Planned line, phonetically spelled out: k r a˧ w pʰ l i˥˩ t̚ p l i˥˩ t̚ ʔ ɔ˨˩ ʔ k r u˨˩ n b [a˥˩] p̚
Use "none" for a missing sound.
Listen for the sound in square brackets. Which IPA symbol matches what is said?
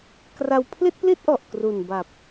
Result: a˨˩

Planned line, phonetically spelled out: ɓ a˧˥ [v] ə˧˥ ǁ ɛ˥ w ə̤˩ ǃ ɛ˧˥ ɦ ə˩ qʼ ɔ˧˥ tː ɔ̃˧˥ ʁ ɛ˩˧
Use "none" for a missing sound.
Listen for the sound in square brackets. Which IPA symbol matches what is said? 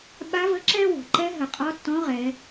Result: v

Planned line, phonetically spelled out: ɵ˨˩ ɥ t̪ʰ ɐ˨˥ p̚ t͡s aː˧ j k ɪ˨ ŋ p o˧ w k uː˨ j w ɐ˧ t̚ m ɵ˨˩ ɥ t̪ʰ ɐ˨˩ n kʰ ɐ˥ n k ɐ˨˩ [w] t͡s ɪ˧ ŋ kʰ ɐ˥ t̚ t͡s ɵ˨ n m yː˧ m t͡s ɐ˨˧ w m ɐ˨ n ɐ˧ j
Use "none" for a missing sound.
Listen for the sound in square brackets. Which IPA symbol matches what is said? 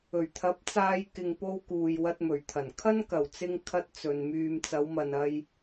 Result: w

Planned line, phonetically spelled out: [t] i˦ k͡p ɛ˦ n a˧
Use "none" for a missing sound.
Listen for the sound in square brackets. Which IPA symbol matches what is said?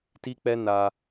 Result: t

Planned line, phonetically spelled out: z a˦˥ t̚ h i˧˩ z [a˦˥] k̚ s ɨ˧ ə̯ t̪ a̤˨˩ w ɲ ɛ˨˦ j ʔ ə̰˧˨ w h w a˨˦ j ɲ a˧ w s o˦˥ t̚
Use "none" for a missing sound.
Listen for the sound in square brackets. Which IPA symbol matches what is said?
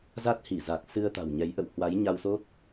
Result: a˨˩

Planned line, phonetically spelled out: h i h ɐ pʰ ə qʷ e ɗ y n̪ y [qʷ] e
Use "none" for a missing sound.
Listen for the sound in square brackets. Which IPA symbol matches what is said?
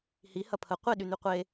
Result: qʷ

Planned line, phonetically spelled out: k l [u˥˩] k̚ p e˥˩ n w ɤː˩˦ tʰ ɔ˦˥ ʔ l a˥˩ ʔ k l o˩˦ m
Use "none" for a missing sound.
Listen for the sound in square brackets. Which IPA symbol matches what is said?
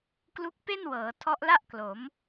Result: u˦˥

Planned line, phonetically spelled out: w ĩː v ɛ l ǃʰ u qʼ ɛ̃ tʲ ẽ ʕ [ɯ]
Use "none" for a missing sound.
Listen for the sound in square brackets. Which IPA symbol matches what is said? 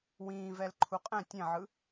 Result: ɯ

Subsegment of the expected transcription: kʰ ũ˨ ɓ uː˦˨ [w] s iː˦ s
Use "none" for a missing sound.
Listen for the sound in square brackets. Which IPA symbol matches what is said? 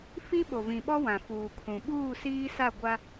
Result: none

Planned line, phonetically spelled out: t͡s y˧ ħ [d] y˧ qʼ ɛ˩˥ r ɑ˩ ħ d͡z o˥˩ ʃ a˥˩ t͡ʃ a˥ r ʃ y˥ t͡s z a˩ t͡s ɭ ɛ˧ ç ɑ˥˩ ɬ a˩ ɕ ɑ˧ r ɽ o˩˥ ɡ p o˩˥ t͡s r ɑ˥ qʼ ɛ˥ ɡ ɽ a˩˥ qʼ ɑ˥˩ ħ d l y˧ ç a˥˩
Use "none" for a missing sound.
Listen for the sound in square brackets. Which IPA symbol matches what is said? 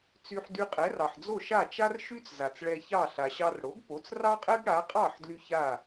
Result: d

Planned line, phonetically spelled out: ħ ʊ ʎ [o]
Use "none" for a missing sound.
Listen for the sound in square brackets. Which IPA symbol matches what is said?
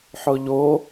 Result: o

